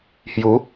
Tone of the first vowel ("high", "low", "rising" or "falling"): rising